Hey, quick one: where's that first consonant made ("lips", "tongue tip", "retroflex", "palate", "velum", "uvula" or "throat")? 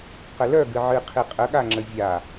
uvula